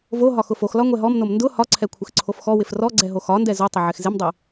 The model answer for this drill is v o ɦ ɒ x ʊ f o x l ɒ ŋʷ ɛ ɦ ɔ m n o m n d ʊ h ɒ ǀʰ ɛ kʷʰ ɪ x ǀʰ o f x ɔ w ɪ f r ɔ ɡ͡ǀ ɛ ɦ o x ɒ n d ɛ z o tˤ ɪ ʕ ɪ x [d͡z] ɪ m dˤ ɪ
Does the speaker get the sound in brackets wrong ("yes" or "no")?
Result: yes